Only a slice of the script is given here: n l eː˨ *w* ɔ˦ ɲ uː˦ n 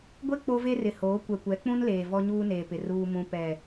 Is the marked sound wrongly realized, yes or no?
yes